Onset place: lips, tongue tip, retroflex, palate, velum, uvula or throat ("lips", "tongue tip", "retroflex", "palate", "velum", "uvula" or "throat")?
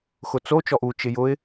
velum